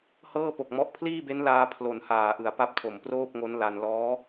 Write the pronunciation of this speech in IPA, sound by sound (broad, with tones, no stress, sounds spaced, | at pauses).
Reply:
h ɤː˥˩ p o˨˩ k̚ m ɔ˦˥ ʔ pʰ l iː˥˩ b e˦˥ n l aː˧ pʰ l o˨˩ n h aː˨˩ ʔ ɯ˩˦ a̯ p a˥˩ p̚ tʰ o˨˩ m p r oː˥˩ p̚ ŋ o˦˥ n l a˧ n l ɔː˦˥